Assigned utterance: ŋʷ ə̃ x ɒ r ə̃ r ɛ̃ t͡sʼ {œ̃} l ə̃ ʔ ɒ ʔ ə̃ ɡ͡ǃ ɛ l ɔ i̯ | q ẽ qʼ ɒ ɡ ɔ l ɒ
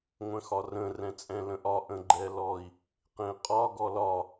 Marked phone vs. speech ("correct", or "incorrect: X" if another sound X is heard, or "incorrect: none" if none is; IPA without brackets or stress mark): incorrect: ɛ̃